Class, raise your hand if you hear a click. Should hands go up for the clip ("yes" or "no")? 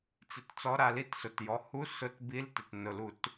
no